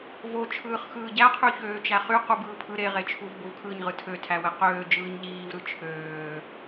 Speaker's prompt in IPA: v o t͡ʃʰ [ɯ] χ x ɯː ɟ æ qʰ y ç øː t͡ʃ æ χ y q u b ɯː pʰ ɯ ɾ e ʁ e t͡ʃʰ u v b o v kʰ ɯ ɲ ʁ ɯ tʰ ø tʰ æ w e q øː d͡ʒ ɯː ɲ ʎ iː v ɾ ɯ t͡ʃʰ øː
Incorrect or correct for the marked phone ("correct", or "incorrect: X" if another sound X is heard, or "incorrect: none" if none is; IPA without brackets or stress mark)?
incorrect: ɯː